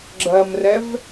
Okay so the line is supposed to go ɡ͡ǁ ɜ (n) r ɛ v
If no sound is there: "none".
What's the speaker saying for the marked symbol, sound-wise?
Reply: m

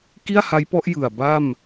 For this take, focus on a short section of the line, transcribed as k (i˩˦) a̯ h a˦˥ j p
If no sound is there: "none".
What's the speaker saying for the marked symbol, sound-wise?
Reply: i˥˩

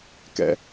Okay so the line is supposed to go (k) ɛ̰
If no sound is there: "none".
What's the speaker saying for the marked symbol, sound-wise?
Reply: k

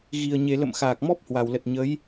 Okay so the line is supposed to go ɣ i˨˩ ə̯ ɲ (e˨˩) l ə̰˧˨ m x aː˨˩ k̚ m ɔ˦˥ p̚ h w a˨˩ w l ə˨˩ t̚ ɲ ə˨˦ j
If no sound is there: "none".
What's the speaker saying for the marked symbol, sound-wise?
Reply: e˨˩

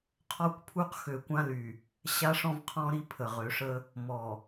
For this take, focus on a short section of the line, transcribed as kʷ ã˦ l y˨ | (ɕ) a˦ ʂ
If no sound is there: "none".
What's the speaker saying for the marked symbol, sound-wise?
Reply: ɕ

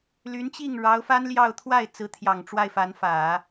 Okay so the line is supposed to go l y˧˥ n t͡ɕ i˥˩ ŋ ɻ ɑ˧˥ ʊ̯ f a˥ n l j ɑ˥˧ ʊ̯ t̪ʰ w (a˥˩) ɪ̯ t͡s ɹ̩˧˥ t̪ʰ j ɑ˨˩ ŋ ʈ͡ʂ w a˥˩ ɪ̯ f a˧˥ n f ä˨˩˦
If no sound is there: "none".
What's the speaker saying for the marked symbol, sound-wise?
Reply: a˥˩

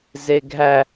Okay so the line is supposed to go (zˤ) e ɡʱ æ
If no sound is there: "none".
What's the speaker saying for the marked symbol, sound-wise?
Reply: z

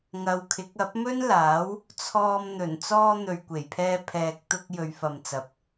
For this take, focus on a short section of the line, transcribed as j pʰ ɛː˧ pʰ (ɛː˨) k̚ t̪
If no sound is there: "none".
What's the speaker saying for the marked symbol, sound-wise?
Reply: ɛː˨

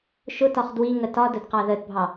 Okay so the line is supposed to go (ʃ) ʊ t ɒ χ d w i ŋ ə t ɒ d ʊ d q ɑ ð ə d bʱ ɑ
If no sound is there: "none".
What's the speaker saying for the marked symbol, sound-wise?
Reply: ʃ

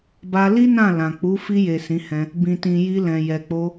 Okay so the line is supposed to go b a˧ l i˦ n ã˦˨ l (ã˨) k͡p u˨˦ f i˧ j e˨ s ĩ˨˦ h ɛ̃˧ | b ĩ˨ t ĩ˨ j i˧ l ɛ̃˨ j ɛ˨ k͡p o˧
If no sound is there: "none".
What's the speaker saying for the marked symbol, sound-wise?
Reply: ã˨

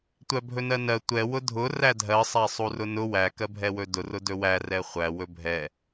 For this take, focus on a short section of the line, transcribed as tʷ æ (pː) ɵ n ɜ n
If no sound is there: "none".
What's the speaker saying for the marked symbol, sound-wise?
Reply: bʱ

